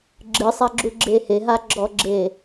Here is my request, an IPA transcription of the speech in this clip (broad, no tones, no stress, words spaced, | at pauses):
ɡ͡ǁɨsˤaɡ͡ǁuɡ͡ǁe heɦaɡ͡ǁɔɡ͡ǁe